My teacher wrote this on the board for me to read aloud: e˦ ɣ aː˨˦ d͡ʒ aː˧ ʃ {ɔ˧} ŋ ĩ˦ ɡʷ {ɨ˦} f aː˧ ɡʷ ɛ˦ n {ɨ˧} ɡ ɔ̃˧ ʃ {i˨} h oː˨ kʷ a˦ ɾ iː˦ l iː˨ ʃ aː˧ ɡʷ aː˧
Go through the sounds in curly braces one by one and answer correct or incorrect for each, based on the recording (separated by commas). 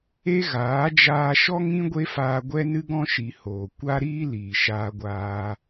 incorrect, incorrect, incorrect, correct